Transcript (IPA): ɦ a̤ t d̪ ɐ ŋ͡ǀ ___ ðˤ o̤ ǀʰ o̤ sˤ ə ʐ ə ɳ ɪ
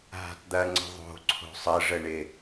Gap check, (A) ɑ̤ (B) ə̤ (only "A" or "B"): B